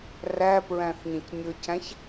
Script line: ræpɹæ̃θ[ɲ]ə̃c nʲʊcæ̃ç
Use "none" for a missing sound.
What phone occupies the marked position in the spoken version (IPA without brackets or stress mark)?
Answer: ɲ